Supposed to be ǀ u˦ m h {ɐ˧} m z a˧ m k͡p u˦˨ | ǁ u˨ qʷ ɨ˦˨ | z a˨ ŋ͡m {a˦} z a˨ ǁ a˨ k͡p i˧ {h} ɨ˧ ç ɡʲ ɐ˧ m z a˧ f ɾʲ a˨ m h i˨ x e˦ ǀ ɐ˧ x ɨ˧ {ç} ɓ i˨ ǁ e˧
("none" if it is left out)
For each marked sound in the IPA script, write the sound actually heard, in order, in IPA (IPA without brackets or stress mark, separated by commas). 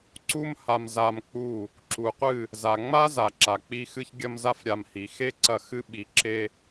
a˧, a˦, x, none